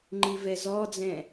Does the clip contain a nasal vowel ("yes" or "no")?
yes